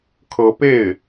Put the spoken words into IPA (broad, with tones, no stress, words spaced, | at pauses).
kʰɤ˧˥pe˥˩ɪ̯